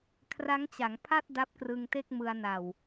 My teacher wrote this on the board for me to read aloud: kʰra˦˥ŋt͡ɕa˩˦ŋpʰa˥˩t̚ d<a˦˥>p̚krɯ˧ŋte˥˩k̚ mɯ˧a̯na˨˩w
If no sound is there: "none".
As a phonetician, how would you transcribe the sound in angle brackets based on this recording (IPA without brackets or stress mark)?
a˦˥